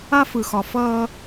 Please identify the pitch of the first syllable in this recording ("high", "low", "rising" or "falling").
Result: high